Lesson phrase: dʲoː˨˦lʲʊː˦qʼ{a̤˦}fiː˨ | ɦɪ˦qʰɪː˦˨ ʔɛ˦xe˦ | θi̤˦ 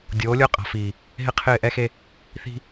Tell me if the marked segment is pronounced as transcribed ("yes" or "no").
no